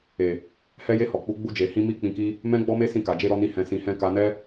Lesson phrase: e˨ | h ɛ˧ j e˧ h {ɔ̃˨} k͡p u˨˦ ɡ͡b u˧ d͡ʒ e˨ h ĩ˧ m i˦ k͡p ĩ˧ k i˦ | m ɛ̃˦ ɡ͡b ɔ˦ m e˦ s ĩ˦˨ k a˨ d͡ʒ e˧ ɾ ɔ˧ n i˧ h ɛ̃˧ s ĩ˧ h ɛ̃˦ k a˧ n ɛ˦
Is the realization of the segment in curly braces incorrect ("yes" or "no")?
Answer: yes